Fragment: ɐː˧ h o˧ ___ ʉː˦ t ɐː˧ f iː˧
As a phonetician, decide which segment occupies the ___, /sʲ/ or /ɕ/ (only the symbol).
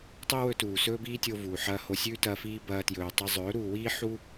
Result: sʲ